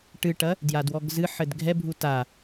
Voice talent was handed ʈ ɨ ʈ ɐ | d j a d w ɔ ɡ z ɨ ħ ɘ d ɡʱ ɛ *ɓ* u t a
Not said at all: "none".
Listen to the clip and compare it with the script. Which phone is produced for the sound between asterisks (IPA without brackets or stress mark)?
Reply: bʱ